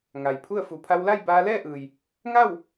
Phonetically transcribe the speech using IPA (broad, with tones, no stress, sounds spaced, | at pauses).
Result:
ŋ a˩ j pʰ u˥˨ ə̯ f u˩˧ pʰ a˧ w l a˥˨ j b aː˧ l ɛː˥˨ ʔ ɯː˩ j | ŋ a˥˨ w